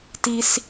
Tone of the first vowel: high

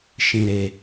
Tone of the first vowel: low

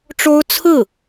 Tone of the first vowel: high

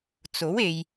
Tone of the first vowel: rising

